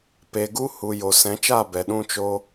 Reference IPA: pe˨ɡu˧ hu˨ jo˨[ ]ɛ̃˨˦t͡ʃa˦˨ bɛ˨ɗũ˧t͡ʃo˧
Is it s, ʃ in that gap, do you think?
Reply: s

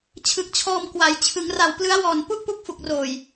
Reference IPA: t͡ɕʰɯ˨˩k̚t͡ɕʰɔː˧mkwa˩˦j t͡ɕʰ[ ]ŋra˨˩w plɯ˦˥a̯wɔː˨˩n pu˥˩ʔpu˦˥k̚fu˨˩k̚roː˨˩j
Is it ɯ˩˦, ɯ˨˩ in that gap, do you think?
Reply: ɯ˩˦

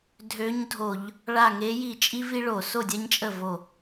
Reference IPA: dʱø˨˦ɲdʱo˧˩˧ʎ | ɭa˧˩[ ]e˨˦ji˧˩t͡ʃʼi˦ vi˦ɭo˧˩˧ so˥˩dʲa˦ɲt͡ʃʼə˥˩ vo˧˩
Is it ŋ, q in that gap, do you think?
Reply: ŋ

